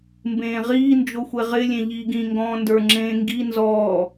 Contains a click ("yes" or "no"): yes